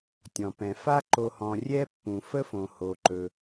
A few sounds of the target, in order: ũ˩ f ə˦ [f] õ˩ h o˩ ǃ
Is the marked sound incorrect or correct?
correct